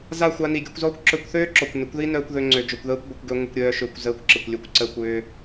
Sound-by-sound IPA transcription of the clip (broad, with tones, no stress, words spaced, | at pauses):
za˦˨ xʷa˧ni˨ ɡʲœ˧kʷzɔː˦kʷ ǁœ˧kʷθøː˦ ǁɔ˨kʷnʏ˨˦kʷði˦nœː˧kʷ ðø˧ŋ͡ǀø˨ d͡ʒo˨kʷðəː˧kʷ ɡʷɪ˧kʷɡø˦ ŋʷɪ˦kʷɾʲœː˦ʃʏː˧kʷ zəː˧kʷǁɪ˨kʷlʲø˧kʷ ǀəː˦kʷʏː˦